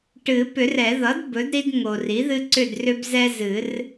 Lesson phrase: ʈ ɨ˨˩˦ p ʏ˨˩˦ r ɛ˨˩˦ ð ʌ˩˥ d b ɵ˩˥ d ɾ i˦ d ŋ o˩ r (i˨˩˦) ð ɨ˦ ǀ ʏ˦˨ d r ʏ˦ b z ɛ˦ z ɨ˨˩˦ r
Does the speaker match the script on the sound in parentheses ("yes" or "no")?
no